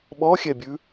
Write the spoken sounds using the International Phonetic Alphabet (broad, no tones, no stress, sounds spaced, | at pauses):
ɓ ɔ xʲ ɛ bʲ ʉ